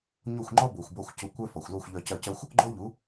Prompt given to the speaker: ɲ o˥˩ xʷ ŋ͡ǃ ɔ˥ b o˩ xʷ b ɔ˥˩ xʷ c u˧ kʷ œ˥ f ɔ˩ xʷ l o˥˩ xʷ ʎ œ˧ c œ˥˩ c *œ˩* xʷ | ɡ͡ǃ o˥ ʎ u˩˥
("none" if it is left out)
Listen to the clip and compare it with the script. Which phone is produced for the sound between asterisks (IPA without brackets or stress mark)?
œ˥